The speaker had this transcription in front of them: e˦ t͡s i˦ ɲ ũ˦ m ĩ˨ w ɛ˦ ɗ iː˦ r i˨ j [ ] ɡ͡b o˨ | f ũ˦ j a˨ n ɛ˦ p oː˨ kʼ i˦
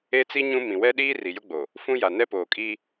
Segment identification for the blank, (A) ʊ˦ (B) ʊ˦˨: A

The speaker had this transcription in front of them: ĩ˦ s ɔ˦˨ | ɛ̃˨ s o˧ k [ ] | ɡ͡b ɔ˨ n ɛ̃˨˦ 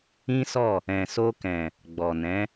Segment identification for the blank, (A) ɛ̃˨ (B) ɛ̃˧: A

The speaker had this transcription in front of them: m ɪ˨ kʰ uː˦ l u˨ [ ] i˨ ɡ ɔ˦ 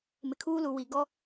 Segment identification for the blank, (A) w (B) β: A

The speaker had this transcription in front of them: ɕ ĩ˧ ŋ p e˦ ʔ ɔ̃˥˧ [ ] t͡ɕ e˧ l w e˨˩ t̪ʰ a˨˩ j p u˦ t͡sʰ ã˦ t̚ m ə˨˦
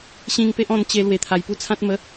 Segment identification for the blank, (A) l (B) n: B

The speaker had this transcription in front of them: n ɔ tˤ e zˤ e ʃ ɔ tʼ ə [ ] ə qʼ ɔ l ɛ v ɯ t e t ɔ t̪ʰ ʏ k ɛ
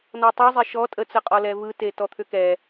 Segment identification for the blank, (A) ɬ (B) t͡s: B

